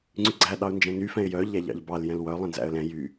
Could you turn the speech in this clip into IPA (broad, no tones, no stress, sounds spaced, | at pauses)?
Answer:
ŋ͡ǀ y ɡ͡ǀ æ ɗ ɑ ʊ̯ n d͡ʒ ɛ̃ n y f ɛ̃ ɪ̯ j œ ʎ æ ʎ ɑ̰ ʎ b ɑ l j ɛ̃ l w œ lˠ ɛ̃ n z æ̰ ə̯ l ɛ̃ j y